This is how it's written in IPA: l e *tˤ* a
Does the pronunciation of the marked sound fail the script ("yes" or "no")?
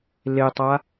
no